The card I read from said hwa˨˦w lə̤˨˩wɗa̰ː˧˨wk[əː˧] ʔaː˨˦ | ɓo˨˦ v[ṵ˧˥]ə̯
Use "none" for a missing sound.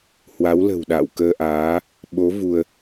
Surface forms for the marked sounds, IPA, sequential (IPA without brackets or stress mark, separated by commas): əː˧, u˧